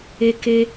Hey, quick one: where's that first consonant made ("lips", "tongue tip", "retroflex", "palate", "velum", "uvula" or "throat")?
velum